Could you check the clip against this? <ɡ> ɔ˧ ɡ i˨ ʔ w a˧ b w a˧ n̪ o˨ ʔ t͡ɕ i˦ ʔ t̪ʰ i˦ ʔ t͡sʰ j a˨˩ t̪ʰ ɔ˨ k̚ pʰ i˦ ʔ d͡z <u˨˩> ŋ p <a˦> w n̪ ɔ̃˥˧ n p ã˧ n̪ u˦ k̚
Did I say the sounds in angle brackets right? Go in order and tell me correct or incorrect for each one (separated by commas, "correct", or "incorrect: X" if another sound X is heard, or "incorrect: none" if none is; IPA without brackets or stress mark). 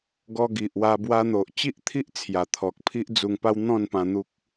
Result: correct, incorrect: u˧, correct